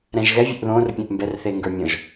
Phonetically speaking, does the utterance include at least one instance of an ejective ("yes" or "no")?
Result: no